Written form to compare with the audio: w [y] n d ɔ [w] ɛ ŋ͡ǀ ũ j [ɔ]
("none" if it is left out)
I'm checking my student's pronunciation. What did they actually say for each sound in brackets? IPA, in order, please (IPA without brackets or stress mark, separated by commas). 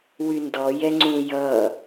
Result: y, j, ʌ